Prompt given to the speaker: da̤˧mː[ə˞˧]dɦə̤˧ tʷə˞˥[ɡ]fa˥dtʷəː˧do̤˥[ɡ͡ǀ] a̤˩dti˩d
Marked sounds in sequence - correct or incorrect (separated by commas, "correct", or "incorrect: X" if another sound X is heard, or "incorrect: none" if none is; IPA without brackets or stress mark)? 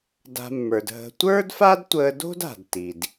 incorrect: ə˞˩, incorrect: d, incorrect: d